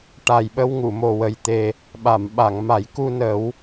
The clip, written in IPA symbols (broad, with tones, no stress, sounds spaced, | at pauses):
ʈ a˨˩ j ɓ ə˧ w ŋ u˨˩˨ m o˨˩ w ə˨˩ j t̪ e˨˩ | ɓ a˨˩˨ m ɓ a˨˩˨ ŋ m a˨˩˦ j k u˧ n əː˨˩˦ w